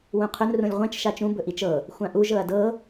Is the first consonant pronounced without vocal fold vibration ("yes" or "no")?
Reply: no